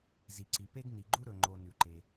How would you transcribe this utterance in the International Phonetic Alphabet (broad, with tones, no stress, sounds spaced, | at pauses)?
z i˩ ǀ i˩ p e˥ ɡ n i˩ ɡ͡ǃ u˥ ɾ ɵ˩ ŋ͡ǃ o˩ n ʉ˩ ǃ e˩